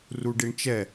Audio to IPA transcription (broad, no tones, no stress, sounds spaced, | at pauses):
r u ɖ i ɳ t͡ʃ ɛ